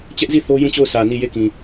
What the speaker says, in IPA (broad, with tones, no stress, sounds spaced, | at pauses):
t͡ɕ ɛ˦ ʔ z i˦˨ θ o˦ j ũ˦˨ t͡ɕ o˦˨ ʊ̯ s ä˨ n i˦˨ j e˦˨ k ĩ˨